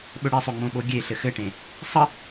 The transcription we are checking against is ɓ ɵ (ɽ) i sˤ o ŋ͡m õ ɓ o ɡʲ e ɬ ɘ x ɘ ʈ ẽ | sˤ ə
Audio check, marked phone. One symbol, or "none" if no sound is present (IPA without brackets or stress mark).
ɽ